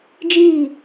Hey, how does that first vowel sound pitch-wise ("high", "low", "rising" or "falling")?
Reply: falling